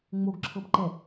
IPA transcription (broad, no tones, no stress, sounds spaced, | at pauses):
ŋ͡m o ɡ ǁʰ ɤ b ǃ ɛ